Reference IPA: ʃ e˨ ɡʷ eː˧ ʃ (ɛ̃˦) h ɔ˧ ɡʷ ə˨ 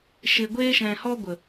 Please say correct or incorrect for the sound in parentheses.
incorrect